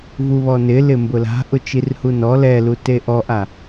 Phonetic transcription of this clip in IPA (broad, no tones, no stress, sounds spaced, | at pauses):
v u β ɔ n ɪ l ɪ m b ʊ l a̤ ʔ ʊ t͡ʃ i r h u n ɔ l ɛ l u t e ʔ ɔ ʔ a